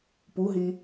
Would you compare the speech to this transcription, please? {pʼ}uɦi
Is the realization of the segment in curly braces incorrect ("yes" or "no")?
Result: yes